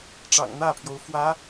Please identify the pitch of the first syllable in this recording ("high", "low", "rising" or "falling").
low